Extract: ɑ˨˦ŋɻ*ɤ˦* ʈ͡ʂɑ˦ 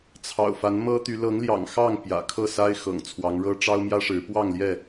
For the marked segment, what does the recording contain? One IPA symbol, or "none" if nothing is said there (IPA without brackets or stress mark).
ɤ˦